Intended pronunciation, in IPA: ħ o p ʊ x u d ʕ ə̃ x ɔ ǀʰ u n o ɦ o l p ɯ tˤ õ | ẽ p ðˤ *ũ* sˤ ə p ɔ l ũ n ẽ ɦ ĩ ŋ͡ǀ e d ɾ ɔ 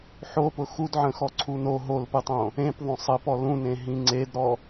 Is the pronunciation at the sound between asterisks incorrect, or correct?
incorrect